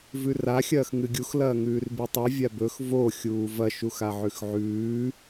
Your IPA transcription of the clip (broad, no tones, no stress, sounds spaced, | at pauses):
v ʉ r a xʲ ɐː x ŋ ɨ ɡʲ u x l ɐː ŋ ʉː r b i tˤ i vʲ a b ɵ x v o xʲ uː v ɐ ʃ u x a ʕ ʉ x ʕ ʉː